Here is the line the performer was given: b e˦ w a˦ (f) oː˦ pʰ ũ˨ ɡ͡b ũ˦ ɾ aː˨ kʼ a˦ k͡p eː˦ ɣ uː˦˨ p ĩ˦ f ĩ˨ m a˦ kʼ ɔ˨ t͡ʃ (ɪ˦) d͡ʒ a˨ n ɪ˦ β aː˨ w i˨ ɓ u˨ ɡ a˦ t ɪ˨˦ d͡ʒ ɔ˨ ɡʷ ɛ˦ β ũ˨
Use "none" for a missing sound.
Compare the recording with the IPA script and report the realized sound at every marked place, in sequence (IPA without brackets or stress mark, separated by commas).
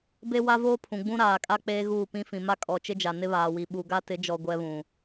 v, ɪ˦